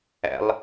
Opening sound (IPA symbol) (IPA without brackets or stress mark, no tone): æ̰